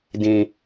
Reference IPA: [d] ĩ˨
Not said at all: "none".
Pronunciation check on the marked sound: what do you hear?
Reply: d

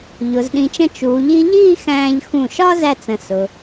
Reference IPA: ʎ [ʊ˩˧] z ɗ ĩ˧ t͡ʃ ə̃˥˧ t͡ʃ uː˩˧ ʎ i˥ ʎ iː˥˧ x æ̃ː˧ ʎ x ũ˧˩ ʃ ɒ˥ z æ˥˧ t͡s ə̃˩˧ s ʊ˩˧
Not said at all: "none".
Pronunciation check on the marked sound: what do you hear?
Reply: ʊ˩˧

